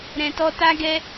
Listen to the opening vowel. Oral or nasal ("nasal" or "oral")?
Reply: nasal